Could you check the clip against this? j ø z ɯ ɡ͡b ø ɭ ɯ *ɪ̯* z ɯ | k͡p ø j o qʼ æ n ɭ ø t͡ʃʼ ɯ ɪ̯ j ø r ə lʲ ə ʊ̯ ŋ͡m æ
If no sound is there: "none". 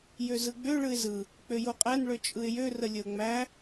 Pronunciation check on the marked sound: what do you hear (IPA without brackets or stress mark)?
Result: ɪ̯